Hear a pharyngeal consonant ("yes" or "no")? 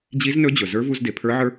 yes